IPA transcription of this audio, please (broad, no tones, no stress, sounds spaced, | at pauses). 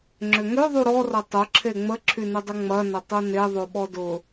ŋ͡ǁ ʏ ŋ ø ðˤ u ɾ ɔ r ɐ tˤ ʊ ǁʰ e ŋ͡m ə ǁʰ y n ʏ dˤ ʏ ŋ͡m ɐ n ɐ tˤ u n e ðˤ o ɓ ɔ d ʊ